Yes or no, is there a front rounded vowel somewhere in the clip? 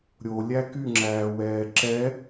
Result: yes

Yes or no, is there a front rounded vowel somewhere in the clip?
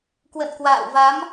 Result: no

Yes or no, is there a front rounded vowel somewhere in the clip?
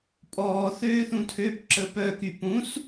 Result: yes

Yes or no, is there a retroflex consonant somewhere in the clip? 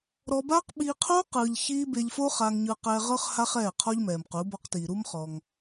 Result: no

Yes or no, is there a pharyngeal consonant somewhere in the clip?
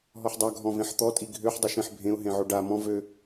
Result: yes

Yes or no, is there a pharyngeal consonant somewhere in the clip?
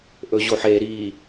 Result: yes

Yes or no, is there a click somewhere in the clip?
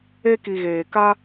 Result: no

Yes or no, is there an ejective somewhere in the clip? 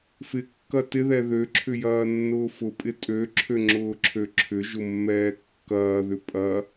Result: yes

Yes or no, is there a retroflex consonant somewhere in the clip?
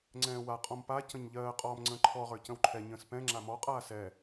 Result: no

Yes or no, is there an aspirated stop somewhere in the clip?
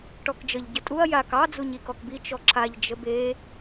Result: yes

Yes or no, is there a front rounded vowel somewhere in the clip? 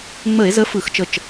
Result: no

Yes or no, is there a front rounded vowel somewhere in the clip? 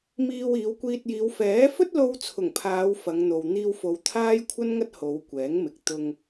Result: no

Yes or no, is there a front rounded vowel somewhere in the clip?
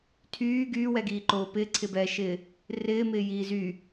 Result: yes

